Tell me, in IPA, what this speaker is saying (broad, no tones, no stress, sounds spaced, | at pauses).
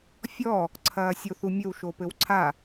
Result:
fʲ ɔ | ǀʰ ɐː sʲ o θ u mʲ ɘ w ʃ o p ɘ w ǀʰ a